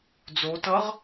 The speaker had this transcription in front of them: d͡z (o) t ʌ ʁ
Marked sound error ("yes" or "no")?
no